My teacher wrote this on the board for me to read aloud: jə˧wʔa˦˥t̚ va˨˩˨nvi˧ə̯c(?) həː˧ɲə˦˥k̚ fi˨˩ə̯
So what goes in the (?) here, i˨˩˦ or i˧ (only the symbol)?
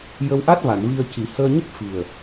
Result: i˨˩˦